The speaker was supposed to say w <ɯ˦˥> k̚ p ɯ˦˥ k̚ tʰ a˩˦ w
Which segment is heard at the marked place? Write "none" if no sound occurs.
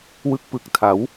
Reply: ɯ˥˩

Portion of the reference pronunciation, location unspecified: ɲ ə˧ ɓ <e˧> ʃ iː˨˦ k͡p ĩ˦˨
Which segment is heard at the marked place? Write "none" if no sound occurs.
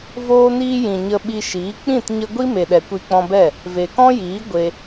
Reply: i˧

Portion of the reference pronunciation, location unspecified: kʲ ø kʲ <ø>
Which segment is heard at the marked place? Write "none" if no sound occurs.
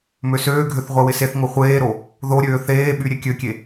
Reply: e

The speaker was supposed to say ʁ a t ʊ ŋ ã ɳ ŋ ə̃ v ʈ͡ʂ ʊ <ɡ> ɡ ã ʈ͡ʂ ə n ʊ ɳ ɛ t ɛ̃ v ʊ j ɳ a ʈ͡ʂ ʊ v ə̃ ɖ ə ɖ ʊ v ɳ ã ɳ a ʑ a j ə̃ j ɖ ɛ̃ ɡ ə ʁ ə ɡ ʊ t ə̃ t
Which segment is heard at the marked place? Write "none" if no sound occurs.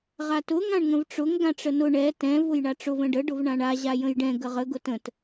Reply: ŋ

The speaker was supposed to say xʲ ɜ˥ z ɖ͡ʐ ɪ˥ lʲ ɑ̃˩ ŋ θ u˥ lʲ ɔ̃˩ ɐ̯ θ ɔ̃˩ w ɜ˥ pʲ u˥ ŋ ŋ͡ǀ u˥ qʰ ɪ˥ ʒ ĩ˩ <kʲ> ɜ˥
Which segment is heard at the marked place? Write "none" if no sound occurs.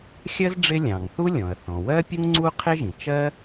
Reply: t͡ʃ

